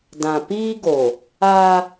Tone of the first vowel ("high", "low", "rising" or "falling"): low